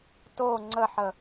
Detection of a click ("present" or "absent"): present